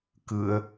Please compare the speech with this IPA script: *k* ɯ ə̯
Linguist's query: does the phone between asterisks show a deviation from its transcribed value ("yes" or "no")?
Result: no